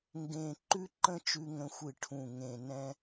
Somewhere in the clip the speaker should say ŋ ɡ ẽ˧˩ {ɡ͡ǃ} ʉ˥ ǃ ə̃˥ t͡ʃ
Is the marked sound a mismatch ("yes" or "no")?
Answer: yes